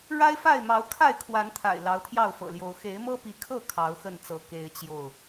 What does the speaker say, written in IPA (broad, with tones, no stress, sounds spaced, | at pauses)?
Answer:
ɻ a˦ ɪ̯ f a˥˨ ɪ̯ m ɑ˨˦ ʊ̯ kʰ a˥˨ ɪ̯ kʰ w a˨˦ n t̪ʰ a̰˨˩ ɪ̯ l ɑ˨˦ ʊ̯ t̪ʰ j ɑ˥˨ ʊ̯ f ɤ̰˨˩ l j o˨˦ ʊ̯ x e˨˦ ɪ̯ m ɤ˦ p i˨˦ kʰ ɤ˥˨ kʰ ɑ˨˦ ʊ̯ x ə˥˨ n t͡s ɤ˨˦ k e˦ ɪ̯ t͡ɕ j o˥˨ ʊ̯